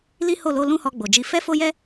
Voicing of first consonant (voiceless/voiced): voiced